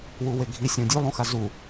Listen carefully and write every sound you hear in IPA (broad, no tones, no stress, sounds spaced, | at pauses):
w u w e ɡʱ i sʲ õ dʲ u lˠ õ x a z u